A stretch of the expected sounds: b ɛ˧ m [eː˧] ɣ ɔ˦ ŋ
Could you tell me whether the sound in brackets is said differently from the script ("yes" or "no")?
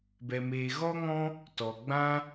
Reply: no